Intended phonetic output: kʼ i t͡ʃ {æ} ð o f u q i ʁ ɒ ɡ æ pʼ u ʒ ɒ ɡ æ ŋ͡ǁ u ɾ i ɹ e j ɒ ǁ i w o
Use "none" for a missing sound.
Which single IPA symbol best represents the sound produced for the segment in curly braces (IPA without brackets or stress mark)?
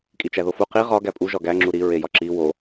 æ